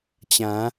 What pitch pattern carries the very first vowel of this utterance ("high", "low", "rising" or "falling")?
rising